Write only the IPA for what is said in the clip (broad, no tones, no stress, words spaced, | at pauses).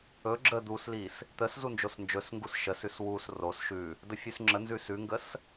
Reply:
ɵ ɡ͡ǁə d̪uslis | t̪əs zund͡ʒosnd͡ʒɵsŋɡus ʃəsʉs wus ros ʃʉ | dəfʲʉsŋ͡ǁənzʉs ʉŋɡəs